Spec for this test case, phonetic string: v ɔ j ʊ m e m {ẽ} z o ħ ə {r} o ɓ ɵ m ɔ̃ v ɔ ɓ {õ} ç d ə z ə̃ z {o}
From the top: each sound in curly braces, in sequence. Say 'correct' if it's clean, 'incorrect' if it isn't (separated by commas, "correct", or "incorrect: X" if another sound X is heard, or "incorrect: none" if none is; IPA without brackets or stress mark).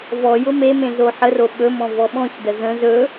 correct, correct, incorrect: ɔ̃, incorrect: ɵ